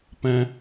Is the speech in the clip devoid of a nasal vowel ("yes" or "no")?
no